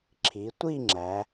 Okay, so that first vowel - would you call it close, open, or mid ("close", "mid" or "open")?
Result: close